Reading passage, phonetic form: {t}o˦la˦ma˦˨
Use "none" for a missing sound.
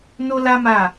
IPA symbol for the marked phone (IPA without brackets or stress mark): n